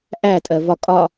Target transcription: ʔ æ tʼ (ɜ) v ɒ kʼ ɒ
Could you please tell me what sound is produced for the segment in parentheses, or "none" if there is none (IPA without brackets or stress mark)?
ɜ